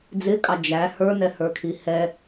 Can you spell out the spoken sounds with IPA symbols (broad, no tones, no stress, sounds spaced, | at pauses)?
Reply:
d͡z ɪ kʼ ɑ d͡ʒ æ h ə˞ n ɛ h ə˞ kʰ i h ɛ